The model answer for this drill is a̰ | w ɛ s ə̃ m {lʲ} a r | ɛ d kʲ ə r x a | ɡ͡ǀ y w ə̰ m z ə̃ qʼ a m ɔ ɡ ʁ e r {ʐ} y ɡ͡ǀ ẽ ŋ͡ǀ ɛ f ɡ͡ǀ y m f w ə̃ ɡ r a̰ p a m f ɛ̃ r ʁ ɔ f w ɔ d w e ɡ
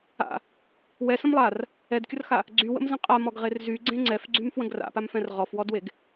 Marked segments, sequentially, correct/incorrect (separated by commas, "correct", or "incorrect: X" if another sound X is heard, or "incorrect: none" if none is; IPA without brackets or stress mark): incorrect: lˠ, incorrect: z